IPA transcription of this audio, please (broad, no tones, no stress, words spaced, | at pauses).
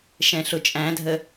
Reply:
ʃɛ̃ɬʊt͡ʃʼæ̃dʱə